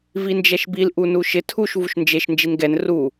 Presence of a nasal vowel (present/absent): absent